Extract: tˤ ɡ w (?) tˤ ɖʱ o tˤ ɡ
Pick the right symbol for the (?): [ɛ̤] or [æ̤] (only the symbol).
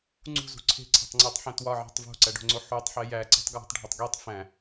æ̤